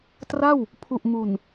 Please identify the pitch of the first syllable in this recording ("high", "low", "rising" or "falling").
falling